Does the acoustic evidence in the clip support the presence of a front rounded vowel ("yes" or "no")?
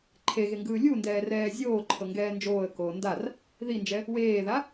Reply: no